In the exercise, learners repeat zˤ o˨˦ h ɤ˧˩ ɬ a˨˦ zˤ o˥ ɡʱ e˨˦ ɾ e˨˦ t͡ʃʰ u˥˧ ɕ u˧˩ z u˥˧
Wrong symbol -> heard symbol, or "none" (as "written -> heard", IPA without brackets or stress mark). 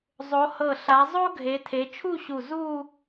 ɾ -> tʰ